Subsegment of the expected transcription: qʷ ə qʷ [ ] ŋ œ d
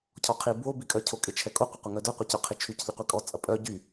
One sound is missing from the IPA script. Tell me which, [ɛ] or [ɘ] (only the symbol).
ɛ